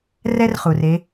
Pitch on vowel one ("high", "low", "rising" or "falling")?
high